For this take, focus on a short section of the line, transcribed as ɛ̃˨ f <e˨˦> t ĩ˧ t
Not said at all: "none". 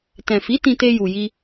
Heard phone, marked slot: i˨˦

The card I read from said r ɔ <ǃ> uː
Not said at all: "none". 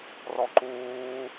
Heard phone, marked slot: ǃ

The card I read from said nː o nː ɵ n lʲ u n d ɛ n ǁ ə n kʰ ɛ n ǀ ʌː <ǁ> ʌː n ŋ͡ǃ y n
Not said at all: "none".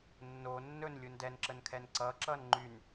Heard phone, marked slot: ǁ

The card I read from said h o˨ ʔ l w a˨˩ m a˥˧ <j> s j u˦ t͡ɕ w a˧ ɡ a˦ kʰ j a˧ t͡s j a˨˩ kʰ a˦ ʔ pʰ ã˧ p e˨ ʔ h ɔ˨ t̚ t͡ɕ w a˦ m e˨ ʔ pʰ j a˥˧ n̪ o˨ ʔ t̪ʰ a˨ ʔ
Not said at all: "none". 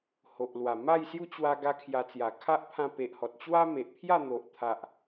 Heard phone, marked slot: j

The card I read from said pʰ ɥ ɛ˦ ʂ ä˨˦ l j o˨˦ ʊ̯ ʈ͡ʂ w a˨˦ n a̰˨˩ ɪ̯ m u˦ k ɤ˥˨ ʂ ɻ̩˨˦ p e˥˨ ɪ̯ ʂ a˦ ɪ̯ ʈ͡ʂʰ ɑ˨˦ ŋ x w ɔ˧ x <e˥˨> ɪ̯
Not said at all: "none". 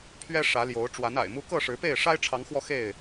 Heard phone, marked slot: e˥˨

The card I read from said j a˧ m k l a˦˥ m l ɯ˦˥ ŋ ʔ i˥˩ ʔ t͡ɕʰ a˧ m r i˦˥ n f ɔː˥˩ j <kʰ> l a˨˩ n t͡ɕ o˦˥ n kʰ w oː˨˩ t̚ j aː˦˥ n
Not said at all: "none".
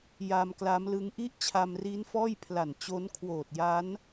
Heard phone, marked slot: pʰ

